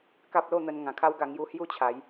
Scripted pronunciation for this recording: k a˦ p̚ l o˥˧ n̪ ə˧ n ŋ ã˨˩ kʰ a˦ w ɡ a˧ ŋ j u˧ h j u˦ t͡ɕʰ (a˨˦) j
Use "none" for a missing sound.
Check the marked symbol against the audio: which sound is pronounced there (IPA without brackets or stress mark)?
a˨˦